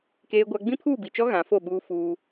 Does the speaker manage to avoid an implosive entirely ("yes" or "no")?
no